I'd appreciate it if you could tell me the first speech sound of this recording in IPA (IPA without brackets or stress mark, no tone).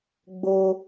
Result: ɡ͡b